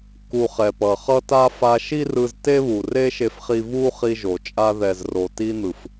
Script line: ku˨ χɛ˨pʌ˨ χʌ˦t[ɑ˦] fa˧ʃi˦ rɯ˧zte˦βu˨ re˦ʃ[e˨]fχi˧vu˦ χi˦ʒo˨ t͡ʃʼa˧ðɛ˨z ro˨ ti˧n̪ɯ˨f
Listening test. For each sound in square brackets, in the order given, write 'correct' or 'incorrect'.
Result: incorrect: a˦, incorrect: e˧

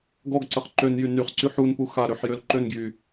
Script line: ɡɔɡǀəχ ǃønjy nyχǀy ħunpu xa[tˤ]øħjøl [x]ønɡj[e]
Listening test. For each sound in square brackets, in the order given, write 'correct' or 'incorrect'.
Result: incorrect: ɾ, incorrect: ǃ, incorrect: y

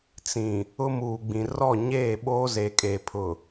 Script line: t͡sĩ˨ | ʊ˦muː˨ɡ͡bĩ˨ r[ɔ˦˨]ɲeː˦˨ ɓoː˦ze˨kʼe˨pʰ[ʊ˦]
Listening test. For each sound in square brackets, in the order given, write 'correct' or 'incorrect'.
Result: correct, incorrect: ʊ˨

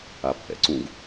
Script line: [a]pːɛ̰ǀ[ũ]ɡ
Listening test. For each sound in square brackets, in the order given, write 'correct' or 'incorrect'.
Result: correct, correct

